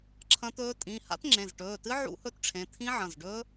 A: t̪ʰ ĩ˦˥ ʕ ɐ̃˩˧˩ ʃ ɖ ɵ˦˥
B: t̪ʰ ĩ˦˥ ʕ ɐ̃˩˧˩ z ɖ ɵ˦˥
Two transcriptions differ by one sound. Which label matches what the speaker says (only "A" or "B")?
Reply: B